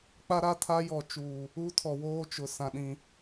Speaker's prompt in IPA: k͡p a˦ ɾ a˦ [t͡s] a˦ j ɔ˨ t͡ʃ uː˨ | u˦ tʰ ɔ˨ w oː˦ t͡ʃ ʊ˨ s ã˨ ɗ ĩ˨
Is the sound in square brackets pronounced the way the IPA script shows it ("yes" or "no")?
no